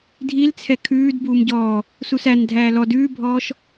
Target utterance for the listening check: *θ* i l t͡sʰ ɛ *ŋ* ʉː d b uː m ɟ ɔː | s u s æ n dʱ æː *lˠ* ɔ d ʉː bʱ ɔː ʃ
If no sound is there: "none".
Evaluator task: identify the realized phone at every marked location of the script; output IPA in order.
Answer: dʱ, kʰ, l

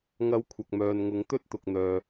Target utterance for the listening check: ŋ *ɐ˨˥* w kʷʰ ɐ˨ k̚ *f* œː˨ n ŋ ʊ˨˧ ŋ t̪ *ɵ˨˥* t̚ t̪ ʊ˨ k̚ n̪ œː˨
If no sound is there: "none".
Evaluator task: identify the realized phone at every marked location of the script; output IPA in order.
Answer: ɐ˨˧, m, ɵ˥

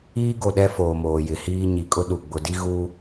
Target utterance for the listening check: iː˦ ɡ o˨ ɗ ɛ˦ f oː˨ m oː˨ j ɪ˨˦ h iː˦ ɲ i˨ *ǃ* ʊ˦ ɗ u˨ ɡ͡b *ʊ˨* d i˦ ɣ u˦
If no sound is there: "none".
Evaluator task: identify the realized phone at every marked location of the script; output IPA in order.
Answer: kʼ, ʊ˨

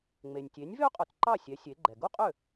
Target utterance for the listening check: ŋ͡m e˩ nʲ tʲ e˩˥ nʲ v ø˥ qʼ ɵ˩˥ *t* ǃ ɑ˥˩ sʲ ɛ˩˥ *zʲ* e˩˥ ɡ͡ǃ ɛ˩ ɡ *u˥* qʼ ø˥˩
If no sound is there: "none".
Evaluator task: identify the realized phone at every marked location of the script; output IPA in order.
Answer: t, sʲ, u˥

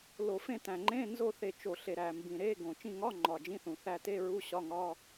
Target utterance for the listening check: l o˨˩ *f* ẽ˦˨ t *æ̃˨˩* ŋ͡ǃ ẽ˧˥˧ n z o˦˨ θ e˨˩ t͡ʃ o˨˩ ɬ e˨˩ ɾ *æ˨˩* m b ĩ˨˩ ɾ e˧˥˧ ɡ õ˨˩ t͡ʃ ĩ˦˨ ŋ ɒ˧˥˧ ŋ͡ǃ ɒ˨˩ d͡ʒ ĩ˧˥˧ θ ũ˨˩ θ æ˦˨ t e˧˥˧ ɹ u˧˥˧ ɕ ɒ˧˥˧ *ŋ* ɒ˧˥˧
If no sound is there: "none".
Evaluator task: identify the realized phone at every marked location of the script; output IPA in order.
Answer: f, æ̃˨˩, æ˨˩, ŋ

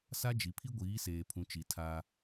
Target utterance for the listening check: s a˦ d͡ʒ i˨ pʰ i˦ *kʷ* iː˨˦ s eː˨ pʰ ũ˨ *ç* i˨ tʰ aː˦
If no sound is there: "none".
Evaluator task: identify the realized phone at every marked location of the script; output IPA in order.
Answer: ɡʷ, t͡ʃ

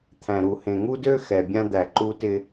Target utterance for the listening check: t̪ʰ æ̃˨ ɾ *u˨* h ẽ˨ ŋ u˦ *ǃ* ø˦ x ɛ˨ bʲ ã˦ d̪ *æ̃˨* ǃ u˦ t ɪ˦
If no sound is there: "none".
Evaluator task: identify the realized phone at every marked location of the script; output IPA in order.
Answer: u˨, d, æ˨

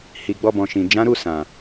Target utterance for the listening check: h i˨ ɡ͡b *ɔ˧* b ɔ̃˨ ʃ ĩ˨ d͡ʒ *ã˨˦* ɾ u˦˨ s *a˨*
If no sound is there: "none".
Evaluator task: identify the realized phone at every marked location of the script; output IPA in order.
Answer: ɔ˧, ã˨˦, ã˨

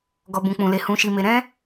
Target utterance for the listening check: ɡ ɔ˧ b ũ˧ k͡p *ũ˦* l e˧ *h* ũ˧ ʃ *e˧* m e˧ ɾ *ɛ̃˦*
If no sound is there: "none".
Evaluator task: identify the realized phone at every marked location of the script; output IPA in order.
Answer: ũ˧, h, i˧, ɛ̃˦

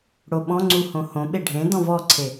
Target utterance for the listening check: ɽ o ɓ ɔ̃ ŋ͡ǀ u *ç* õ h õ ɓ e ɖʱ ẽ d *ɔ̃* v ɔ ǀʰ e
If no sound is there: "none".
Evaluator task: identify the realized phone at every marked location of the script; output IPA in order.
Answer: h, ɔ̃

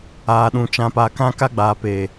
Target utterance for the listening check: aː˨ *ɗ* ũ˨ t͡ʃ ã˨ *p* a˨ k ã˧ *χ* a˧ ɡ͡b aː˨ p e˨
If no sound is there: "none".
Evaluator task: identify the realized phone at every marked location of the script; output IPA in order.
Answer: ɗ, p, k

